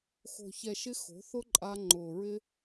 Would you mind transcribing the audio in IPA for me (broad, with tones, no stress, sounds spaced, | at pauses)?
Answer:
x o̤˨ ç ɛ˨ ʃ ɪ˧ x o̤˨˦ θ ʊ˦ ǃʼ a˧ ŋ͡ǃ ʊː˨ ɹ ɪ˧